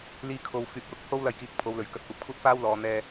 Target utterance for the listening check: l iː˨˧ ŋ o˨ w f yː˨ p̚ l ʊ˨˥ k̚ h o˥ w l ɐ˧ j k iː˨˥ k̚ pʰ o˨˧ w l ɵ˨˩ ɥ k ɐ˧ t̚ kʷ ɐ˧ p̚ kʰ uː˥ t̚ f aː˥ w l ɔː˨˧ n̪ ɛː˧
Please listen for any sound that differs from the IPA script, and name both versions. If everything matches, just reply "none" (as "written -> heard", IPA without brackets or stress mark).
ŋ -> kʰ